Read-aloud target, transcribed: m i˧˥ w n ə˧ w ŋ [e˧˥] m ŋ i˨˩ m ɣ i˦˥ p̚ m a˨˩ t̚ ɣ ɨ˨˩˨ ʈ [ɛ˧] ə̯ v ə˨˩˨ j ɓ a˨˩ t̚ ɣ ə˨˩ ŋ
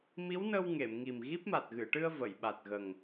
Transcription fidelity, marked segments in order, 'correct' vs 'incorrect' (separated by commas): incorrect, incorrect